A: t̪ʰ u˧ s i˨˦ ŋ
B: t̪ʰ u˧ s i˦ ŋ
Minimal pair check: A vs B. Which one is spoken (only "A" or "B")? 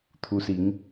A